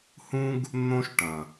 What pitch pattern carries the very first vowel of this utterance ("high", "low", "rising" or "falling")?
high